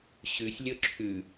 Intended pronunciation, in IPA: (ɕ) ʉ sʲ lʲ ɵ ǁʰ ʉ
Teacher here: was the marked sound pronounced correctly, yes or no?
yes